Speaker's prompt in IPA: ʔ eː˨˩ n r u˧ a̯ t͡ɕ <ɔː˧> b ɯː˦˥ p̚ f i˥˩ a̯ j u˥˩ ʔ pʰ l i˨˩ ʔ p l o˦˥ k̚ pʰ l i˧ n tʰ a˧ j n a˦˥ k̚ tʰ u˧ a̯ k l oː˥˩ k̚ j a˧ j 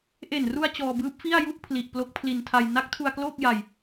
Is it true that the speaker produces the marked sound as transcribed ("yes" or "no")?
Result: yes